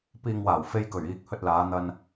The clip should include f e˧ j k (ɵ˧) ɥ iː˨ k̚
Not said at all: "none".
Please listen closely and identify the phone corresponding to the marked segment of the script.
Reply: ɵ˨˩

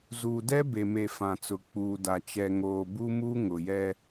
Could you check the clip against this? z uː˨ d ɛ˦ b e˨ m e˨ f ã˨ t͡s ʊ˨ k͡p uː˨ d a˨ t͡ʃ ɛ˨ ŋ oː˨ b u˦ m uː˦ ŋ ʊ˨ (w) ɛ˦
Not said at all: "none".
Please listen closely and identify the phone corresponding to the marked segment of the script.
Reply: j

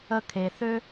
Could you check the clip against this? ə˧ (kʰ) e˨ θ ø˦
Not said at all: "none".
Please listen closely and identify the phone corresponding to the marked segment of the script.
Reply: kʰ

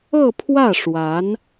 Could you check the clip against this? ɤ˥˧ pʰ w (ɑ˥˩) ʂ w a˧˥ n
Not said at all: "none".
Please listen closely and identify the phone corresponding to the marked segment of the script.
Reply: ä˥˩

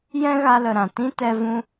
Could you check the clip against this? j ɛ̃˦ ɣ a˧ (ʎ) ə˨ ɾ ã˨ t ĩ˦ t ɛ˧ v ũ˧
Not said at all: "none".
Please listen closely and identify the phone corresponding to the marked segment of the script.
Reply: l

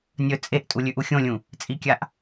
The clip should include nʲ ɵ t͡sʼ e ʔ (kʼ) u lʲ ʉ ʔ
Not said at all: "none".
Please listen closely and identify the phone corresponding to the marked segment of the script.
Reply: tʼ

